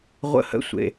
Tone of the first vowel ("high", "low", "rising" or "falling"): falling